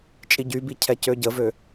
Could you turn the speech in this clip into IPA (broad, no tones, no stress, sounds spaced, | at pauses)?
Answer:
t͡ʃʼ i ɟ y b i cʰ ɛ c ø ɟ ə v ø